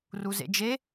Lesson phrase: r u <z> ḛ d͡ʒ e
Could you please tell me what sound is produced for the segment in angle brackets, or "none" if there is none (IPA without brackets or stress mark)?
z